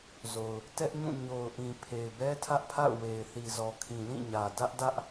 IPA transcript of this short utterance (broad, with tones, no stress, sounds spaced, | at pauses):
z o˨ ʊ̯ | t ɛ˦ ʔ ɲ ũ˦˨ ɲ o˨ ʊ̯ ʔ ĩ˨ pʰ e˨ ɪ̯ b ɛ˦ tʰ ä˦ ʔ pʰ a̰˦˨ ʊ̯ w e˨ ɪ̯ θ i˨ z ɔ˨ kʰ ĩ˨ l ĩ˦˨ ɲ ä˨ d ä˦ ʔ d ä˦ ʔ